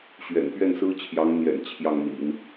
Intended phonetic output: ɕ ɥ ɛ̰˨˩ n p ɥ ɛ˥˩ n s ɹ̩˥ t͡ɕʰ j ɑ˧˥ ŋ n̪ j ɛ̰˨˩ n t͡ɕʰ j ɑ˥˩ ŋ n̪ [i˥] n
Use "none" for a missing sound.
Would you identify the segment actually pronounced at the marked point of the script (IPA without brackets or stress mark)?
ḭ˨˩˦